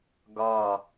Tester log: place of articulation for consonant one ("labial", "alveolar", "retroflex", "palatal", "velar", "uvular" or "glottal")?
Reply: velar